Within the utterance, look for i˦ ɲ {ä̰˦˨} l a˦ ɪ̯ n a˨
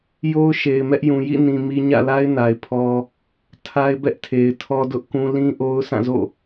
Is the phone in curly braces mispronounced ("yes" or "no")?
no